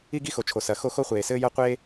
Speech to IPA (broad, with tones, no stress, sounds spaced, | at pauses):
i˥ ɡ i˥ x o˨ t͡ʃʰ o˨ s ɐ˨ x o˥ x o˥ χʷ eː˨ s ɘː˥ j ɐ˥ qʷ eː˥